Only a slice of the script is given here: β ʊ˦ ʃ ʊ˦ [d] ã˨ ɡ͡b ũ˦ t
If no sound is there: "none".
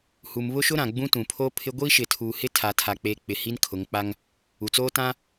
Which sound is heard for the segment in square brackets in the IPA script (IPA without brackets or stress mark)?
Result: ɾ